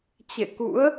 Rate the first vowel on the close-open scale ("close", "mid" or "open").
mid